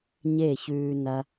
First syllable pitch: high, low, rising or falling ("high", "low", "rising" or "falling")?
falling